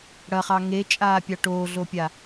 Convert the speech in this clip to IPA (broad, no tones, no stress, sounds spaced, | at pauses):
ɽ ɐ χ ɑ ŋ e t͡ʃʼ aː pʲ ɑ ʈ oː ɮ o pʲ a